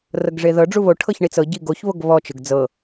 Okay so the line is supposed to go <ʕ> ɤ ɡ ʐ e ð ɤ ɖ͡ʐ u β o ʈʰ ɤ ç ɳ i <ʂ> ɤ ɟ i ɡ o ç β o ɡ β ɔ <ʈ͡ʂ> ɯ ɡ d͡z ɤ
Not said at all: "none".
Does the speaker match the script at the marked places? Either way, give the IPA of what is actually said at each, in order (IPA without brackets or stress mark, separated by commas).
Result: r, t͡s, t͡ʃ